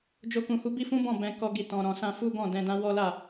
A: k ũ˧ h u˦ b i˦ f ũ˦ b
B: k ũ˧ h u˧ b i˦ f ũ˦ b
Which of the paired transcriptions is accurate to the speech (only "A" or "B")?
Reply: A